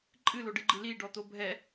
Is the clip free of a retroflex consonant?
no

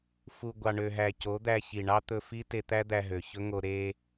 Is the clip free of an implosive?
yes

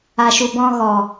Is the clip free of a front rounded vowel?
yes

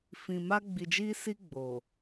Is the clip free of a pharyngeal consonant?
yes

